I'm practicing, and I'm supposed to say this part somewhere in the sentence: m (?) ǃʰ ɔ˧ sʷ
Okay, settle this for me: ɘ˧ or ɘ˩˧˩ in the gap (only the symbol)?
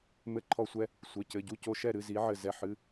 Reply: ɘ˧